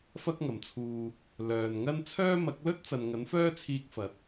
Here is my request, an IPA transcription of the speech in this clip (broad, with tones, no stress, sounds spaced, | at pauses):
f ɐ˥ k̚ ŋ ɐ˨ m t͡sʰ uː˧ | l œː˨ n ŋ ɐ˥ n t͡sʰ œː˥ m ɐ˨˥ k̚ l ɵ˥ t̚ t͡s ɐ˨ n ŋ ɐ˨˥ n f œː˥ t͡sʰ iː˧ k̚ f ɐ˨˥ t̚